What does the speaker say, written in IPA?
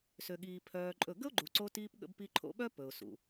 s ø˧ ɠ iː˧ pʰ œː˧ ǃʼ ɵ˦˨ ɡ ə˦ ʊ̯ ɡ͡ǃ u˨ ǀ o˧ t iː˧ p ɠ ə̰˧ b p i˧ ǃʰ o̰˧ ɓ œ˦ p ɵ˨ ʊ̯ s ṵ˨

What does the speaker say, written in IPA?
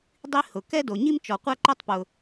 dˤ i˥ h ʊ˩ k ɛ˥ d o˩ ɲ i˥ m t͡ʃ ɔ˩ qʷ a˥ ǃ o˥ tˤ p ʊ˩

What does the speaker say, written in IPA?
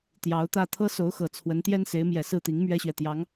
t̪ j ɑ˧˥ ʊ̯ t̪ ä˥˩ t̪ʰ ɤ˥ s o˧˥ ʊ̯ x ɤ˨˩ t͡sʰ w ə˧˥ n t̪ j ɛ˥ n s e˧˥ ɪ̯ m j ɛ˨˩ s ɹ̩˥˩ t̪ i˧˥ ŋ m ɥ ɛ˥ ɕ ɥ ɛ˨ t̪ j ɑ˧˥ ŋ

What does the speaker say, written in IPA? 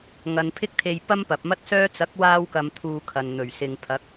ŋ ɐ˨ n pʰ ɪ˥ k̚ t̪ʰ e˧ j p ɐ˥ m p ɐ˨ p̚ m ɐ˥ t̚ s œː˥ t͡s ɐ˨˥ k̚ w aː˧ w k ɐ˨ m t̪ʰ uː˧ kʰ ɐ˨ n n̪ ɵ˨˩ ɥ s ɪ˨ ŋ pʰ ɐ˨˥ k̚

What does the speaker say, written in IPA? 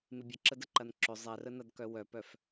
m ɪ bʲ ə ǁ ə d ə ǃ ɐ n ǁ ʏ zˤ ɛ r ə n ɐ d k œ w œ p œ f

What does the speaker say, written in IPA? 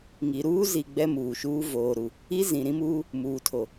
ŋ i˨ ɾ uː˦ z i˨ ɡ͡b ɛ˦ m uː˨ ʃ uː˦ v oː˨ ɾ u˨ | i˦ z ĩ˨ ɾ ĩ˦ m uː˦ | m uː˨ tʰ o˨

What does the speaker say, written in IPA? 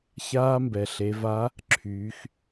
ç aː˧ m b ɛ˩ ɬ e˩˧ v a˧˥ | ǁʰ yː˩˧ x

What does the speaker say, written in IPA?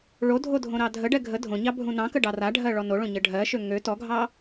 ɭ o dʱ o dʱ õ ɾ ɑ dʱ ə ɖ ɛ ɡʱ ə dʱ õ ɲ ɑ bʱ ũ n ɑ̃ k ə ɖ ɑ r a ɖʱ ɜ ɭ ɔ n o ɭ õ ɲ ə ɖʱ ɜ ʃ ø ŋ ø t ɔ ɡʱ ɑ

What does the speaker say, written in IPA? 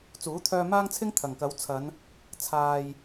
t͡s uː˨˥ t̪ʰ œː˧ m aː˥ ŋ t͡sʰ ɪ˥ ŋ t̪ʰ ɐ˨˩ ŋ k ɐ˨˥ w t͡sʰ ɐ˨˧ n | t͡sʰ aː˨ j

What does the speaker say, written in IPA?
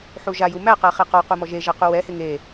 ħ u ʒ a j u m æ q æ χ e q ɔ q u m ɔ ʒ e ʒ ɛ q u w ɛ h e ŋ e

